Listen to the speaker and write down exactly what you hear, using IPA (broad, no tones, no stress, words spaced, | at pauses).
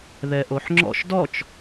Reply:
ðɛʔoħŋ͡ǁɔ̰ʃ dɔt͡ʃ